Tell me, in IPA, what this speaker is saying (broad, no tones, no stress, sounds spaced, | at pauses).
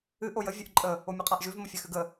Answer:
ɨ ʔ o j ə vʲ ʉ ʔ ǃʼ ə | o mʲ ʉ qʼ a ʔ ʒ ʉ v m ə fʲ a x ʉ ɡ ə